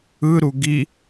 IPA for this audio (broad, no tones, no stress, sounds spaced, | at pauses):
ɯ ɾ u ɡ i